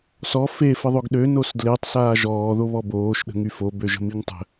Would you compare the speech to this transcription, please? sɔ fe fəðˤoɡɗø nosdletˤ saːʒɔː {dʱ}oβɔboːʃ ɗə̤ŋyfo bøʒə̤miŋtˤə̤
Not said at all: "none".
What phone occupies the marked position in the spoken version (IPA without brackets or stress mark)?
ð